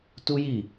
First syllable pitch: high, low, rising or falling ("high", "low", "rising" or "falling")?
high